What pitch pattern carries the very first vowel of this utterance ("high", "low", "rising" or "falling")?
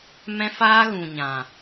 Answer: high